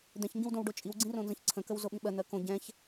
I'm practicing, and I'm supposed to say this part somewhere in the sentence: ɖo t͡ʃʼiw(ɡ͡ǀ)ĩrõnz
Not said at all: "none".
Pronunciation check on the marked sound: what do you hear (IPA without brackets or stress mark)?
ɡ͡ǀ